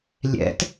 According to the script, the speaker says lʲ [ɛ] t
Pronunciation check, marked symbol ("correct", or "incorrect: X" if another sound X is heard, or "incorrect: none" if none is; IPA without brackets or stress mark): incorrect: ɛ̰